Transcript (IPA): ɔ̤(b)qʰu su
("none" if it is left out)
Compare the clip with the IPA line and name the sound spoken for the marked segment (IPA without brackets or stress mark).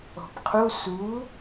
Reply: b